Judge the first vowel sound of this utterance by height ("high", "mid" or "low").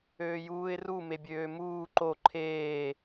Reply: mid